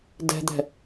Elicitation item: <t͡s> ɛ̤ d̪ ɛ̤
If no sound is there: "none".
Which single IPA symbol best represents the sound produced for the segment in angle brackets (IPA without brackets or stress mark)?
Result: d